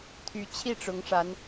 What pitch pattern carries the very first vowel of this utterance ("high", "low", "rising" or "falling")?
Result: rising